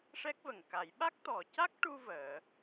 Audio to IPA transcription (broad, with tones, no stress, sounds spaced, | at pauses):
ʂ ɛ˦˥ k̚ v ə˨˩ ŋ k a˨˩˦ j ɓ a˦˥ k̚ t̪ ɔ˨˩ c a˦˥ k̚ ʈ u˧ v əː˨˩˦